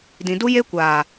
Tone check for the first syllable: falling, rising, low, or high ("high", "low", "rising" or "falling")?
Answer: low